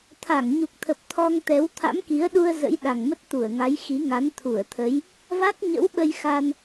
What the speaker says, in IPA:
t̪ʰa˧˩ŋɲu˨˩k̚t̪ʰə˨˩p̚ t̪ʰɔ˧ŋt̪ɛ˨˦w t̪ʰa̰˧˥mki˨˦ə̯ɗu˧ə̯ zə̰˧˥jɗa˨˩ŋmə˦˥t̚ t̪u˧˩ə̯ŋa˨˦jxi˨˦ ŋa˨˦nt̪ʰu˧˩ə̯t̪ʰə˨˦j | va˦˥k̚ɲə̰˧˥wɓə˧j xa˧n

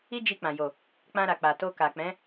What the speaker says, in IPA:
i˦d͡ʒi˧k͡pã˨ jo˨ | k͡pã˧ɾa˨k͡pa˨ to˧ka˨k͡pɛ̃˨˦

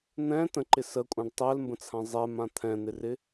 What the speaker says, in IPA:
n̪ɛ̃ tə̃ǃɪ səkʷʼãɖ tˤɛlmbə̃t͡sʰã zˤɛmã t̪ʰɛ̃n̪ɪrɪ

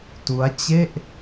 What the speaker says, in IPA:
tu˦˥a̯t͡ɕe˥˩ʔ

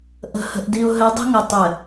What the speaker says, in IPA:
ʔə̤˨hə̤˨ʔdi˨ʊ̯ ɦɘ˨˦dˤə̤˦ŋʊ˨ tˤɘ˨

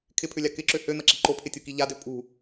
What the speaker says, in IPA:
kʰɪpʰʏlʲa kɪǁø høn̪ɐǁi ǃopʰɪtʲuki ʎadø pʼṳ

